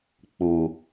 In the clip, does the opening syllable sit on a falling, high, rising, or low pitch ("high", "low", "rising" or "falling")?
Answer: low